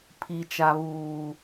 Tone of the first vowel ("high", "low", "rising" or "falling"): low